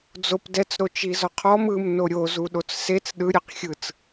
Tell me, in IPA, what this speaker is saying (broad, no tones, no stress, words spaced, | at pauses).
d͡zop dɛt͡sɾot͡ʃizɔ qʰɔm ɯmno ɾʲozuɗot͡s set͡s ɗɯɾʲɯqxʲɯt͡s